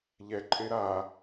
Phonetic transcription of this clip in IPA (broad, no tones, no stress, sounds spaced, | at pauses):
ʎ ɛ ǃʼ e ɾ a